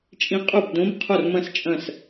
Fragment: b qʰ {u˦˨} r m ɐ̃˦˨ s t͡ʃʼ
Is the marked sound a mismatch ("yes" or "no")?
yes